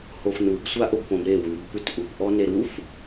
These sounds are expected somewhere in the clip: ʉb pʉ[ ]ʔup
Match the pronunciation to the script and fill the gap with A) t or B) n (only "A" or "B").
A